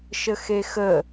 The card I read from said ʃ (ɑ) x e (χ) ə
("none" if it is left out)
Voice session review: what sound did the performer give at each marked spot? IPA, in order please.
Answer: ə, x

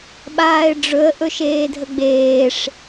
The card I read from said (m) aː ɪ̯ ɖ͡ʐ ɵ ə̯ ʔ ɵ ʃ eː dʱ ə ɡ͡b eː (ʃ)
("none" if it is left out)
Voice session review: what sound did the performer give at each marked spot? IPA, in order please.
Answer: ɓ, ʂ

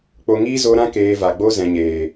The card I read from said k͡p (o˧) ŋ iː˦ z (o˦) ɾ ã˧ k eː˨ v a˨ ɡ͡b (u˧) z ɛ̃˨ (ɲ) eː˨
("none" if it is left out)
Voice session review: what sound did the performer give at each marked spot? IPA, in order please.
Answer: o˧, o˧, o˧, ɲ

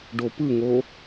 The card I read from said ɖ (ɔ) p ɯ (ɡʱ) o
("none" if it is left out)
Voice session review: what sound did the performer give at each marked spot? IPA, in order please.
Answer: o, ŋ

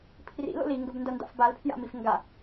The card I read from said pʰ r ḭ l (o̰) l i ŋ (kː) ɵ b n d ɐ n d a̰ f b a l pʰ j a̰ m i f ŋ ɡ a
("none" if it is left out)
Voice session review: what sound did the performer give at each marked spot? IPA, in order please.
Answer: o̰, ɡ

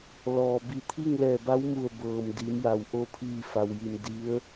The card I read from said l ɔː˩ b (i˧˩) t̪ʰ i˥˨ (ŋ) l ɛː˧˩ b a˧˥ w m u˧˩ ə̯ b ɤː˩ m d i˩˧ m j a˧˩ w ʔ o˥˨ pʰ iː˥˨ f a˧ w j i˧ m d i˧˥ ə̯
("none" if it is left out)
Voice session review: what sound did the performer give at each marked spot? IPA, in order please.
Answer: i˧˩, ŋ

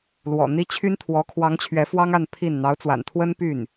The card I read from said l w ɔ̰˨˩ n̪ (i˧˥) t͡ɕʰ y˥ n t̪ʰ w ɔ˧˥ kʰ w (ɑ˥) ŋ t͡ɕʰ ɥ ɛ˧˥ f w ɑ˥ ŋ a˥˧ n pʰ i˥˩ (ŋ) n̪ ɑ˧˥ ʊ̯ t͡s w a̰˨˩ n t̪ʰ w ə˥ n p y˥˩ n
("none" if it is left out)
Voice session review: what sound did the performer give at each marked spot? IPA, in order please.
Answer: i˥, ɑ˧˥, n

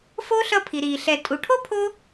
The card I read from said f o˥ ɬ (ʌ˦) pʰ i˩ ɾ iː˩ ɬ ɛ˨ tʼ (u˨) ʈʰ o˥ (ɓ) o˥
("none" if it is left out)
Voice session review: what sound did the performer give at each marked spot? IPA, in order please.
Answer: ʌ˦, u˨, pʰ

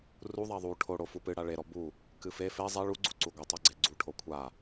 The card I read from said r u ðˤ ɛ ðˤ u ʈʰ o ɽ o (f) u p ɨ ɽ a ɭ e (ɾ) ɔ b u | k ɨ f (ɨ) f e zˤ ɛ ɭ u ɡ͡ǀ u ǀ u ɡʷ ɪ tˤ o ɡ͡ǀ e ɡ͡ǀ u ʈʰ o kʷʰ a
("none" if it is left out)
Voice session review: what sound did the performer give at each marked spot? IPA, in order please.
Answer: f, ɾ, e

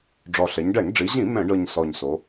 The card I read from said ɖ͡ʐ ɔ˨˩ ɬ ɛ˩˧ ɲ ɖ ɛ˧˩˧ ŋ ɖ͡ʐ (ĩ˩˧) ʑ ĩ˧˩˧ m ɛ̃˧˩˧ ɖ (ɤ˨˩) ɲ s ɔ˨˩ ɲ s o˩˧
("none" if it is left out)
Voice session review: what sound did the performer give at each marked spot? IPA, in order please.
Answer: i˩˧, ɤ˨˩

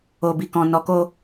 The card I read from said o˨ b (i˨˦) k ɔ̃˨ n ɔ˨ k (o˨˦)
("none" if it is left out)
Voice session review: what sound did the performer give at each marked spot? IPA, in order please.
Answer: i˨, o˧

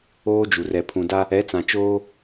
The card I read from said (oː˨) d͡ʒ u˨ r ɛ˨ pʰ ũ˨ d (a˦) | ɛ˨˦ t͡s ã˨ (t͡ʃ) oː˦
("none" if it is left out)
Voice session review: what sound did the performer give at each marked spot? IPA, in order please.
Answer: oː˦, a˦, t͡ʃ

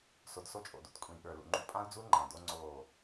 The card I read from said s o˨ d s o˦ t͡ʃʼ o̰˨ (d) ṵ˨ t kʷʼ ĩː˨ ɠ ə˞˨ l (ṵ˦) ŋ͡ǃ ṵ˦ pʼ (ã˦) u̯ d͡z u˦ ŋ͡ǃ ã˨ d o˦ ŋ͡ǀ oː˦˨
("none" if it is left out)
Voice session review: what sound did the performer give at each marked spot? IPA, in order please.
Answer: d, ṵ˨, ã˦

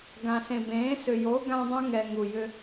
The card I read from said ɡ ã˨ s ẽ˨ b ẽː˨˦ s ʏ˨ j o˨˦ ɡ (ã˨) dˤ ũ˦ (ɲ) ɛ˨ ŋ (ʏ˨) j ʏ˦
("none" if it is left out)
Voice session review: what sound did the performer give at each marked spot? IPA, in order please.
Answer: ã˦, ŋ, u˨

